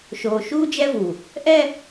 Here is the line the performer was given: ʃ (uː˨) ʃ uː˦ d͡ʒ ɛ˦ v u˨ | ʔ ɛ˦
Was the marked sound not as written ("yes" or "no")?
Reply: yes